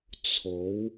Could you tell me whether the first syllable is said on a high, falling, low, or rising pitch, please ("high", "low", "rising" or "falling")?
rising